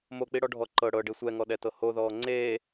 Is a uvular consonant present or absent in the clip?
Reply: absent